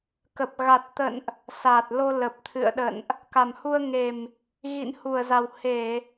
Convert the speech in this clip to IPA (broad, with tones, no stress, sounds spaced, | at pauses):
k ə˨˩ p̚ ɣ a˨˩ t̚ t̪ ə̰˧˨ n ʔ | s a˨˩ t̚ l o˧ l ə˨˩ p̚ t̪ʰ ɨ̰˧˨ ə̯ ɗ ə̰˧˨ n ʔ | k a˨˩ m h u˧ ə̯ ŋ e˨˩ m | ɣ ḭ˧˨ n h u˧˩ ə̯ z a˨˩ w h e˧˩˨